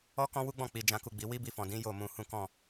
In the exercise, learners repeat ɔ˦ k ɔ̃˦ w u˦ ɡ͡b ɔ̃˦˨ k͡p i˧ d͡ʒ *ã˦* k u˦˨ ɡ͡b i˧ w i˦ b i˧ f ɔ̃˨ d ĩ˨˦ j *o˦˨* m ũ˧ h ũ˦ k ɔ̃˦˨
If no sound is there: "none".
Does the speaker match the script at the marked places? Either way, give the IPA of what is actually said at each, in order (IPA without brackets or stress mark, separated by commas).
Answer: ã˦, o˦˨